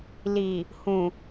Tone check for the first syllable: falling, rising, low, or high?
low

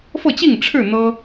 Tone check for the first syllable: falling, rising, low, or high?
falling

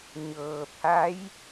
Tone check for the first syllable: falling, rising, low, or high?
low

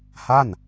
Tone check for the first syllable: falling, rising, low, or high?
falling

